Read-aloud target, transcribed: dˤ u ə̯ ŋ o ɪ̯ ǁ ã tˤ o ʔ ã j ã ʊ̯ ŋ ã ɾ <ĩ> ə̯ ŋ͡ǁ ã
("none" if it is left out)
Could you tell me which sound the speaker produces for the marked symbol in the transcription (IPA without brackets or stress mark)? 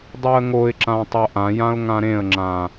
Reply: ẽ